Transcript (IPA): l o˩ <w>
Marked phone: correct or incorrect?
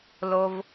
incorrect